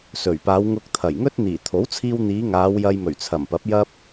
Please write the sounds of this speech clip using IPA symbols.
sɵ˨˩ɥpaː˨˧w ŋʊ˧k̚t̪ʰɐ˨˩j ŋɵ˥t̚n̪iː˨˩ t̪ʰo˨˥wt͡sʰiː˧wn̪iː˨˧ ŋaː˨˧w jɐ˧jmɵ˨˩ɥt͡sʰɐ˨˩mpɐ˨˥p̚ jɐ˥p̚

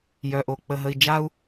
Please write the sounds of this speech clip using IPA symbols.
jœ˨ʔo˨ k͡pə˨ɦə˨i̯d͡ʒa˦u̯

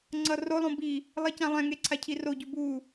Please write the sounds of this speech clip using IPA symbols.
ŋ͡ǀʌrolˠõ bi | lˠecãlˠɛ̃ŋe ǀʰacʰiroɟu bu

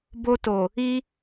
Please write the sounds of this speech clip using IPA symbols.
bo˧to˨ | i˧

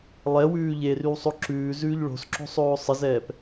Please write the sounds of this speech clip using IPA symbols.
lˠɛwʉː ʎerywsˤo ǁʉːzʉːʎ ɭo̤sǁo̤sˤoː sˤəzɛːp

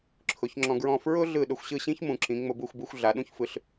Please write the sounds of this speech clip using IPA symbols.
ǁʰʊ˩˥çŋ͡ǁɔ̃˧ɡɹɔ̃˥˩ fɹʊ˥ ɮɯ˥˩ɗʊ˧xʷ ɕɯ˥˩ɕĩ˥ç mũ˩˥ǁĩ˩˥ ŋ͡mʊ˧bu˥˩xʷbu˧xʷ ɮa˩˥ɗũ˥çfɯ˩˥ɬ

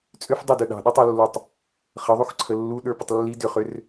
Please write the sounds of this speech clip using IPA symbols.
t͡sʼʏf dˤɵdɵ ɗɑ̤ɗɵtˤolːotˤ | χəðˤuxǀʰə lːuɗə˞pətˤ lːi dʏχʏr

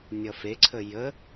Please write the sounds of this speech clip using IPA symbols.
nʲʌfeǀʰə jə

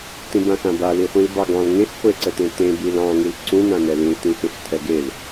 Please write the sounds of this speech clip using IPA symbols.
tĩbãxãba liχʷĩlbɑɡɑ̃l ŋẽx χʷeǀətẽtẽ bilɑ̃ ŋilǀũ nãnɛlĩl tĩxẽxtʰɛɡel

